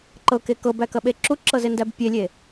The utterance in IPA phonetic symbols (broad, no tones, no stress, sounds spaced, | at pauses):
ǃ ɤ k e k ɤ b æ k ɐ ɓ e ǁ u ǁ ɤ z e n d æ b pʲ e lʲ e